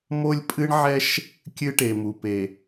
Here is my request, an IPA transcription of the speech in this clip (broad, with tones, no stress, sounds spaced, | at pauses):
m o˦ lʲ pʼ ɨ˦ ɳ ʕ ɛ˦ ʃ | kʲ ɨ˦ ʈ e˨ m u˨ p e˨